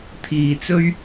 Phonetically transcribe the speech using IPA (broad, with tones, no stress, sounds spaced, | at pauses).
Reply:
t̪ʰ iː˨ t͡s ɵ˥ ɥ